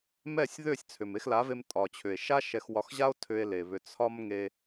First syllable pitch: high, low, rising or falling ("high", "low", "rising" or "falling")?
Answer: falling